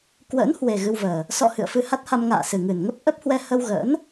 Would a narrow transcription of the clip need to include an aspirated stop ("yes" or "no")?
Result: no